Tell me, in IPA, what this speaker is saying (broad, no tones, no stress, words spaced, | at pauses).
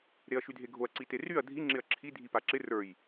ɾeɐ̯ʃydʱeɡʱoɐ̯ ǀiteryɐ̯ dʱi ŋ͡ǁɪɐ̯ǁʰi dʱipaǁɪ rə˞j